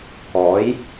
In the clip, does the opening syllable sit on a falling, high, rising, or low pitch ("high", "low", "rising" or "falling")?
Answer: rising